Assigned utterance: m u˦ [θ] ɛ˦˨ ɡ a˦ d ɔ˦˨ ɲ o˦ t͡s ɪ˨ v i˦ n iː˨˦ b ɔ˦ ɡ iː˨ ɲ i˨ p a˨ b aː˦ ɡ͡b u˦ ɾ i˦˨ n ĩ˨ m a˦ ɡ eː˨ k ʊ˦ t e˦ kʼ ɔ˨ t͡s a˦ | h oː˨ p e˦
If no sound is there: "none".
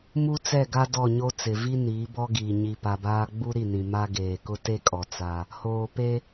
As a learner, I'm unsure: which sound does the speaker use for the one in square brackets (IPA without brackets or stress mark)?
t͡s